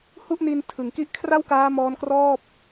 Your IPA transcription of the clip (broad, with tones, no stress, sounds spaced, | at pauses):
h u˥˩ ʔ n i˧ n tʰ ɯ˩˦ ŋ k i˦˥ ʔ kʰ r a˥˩ w k aː˦˥ m ɔː˦˥ n k r ɔː˥˩ p̚